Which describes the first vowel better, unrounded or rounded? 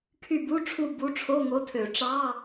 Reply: rounded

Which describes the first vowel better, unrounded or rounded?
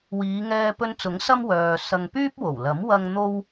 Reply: unrounded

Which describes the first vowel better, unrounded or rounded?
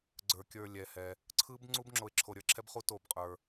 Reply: unrounded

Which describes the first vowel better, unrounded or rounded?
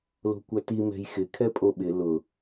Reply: rounded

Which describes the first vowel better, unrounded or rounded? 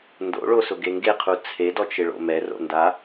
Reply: rounded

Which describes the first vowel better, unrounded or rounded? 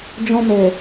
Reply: rounded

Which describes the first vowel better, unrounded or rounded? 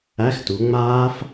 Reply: unrounded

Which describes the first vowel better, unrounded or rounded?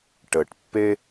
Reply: unrounded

